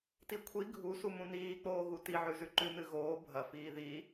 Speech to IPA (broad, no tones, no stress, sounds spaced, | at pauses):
t i kʷʰ i ɡʱ u s u m ũ n iː k͡p oː ɣ u t i ʕ ʉ z ʉ ǃ ʉ n ɨ ɣ oː bʱ ɐ f iː ð i